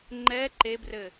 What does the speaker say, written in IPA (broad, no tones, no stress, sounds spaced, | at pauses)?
ŋ͡ǃ ɛ ǃ e b r ɘ